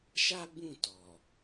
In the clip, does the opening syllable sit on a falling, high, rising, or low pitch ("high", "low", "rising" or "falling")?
high